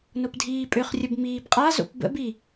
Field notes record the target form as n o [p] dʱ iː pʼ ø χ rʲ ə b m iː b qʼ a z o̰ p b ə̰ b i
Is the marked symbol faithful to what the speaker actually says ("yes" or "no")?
yes